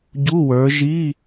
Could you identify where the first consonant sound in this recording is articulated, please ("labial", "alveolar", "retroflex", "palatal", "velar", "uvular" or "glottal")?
palatal